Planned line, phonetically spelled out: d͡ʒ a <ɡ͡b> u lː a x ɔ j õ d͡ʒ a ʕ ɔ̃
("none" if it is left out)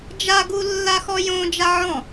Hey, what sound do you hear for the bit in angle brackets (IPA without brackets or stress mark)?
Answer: ɡ